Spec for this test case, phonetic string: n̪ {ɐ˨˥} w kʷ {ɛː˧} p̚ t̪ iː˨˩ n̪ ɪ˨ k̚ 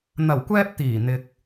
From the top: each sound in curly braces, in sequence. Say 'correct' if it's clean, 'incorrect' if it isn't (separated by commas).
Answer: incorrect, correct